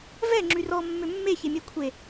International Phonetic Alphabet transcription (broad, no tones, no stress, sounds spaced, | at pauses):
v ɛ ŋ͡ǁ y r ɔ mː ø mː e ç e mʲ ɛ kʷʰ e